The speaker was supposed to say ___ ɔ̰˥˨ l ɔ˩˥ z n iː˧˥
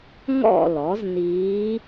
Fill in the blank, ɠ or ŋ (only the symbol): ŋ